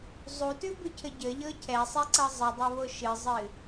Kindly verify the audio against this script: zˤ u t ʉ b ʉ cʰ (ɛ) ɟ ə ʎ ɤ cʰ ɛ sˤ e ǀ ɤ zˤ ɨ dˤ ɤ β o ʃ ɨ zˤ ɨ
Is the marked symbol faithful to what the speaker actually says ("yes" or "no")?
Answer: no